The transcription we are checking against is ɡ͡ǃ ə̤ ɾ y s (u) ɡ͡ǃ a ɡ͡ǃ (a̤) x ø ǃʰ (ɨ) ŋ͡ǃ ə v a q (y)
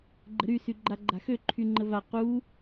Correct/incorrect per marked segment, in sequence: incorrect, correct, incorrect, incorrect

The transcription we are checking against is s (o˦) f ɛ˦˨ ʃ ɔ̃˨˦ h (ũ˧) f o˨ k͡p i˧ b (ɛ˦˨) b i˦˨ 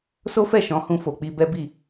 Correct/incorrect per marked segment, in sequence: correct, correct, incorrect

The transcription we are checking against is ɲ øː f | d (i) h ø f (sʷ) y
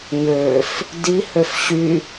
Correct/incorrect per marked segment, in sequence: correct, incorrect

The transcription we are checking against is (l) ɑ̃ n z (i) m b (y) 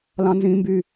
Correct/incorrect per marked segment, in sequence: correct, incorrect, correct

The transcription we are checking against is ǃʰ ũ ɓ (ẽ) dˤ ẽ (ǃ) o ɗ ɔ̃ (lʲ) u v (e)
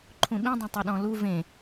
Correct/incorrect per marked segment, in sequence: incorrect, incorrect, incorrect, incorrect

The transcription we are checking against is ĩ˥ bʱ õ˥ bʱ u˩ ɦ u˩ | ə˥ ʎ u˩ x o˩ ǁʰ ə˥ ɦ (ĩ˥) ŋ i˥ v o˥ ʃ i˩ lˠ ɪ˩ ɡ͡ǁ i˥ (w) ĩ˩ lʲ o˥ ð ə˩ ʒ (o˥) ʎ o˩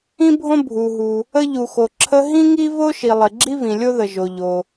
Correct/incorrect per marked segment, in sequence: correct, incorrect, incorrect

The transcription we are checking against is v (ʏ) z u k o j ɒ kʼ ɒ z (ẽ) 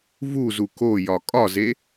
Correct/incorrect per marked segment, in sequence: incorrect, incorrect

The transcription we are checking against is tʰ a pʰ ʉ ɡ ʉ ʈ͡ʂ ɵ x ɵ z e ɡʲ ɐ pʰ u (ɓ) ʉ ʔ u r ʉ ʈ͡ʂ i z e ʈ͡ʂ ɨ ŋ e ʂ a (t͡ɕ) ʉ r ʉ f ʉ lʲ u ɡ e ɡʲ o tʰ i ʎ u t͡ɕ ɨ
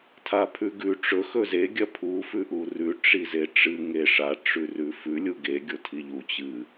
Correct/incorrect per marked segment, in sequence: incorrect, incorrect

